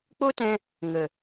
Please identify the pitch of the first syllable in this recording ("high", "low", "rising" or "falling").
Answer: high